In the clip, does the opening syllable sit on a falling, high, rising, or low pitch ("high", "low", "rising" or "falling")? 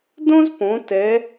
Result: high